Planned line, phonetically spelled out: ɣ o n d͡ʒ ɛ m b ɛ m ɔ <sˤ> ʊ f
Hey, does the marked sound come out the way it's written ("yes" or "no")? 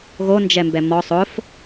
yes